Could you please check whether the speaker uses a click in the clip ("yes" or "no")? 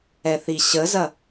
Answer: no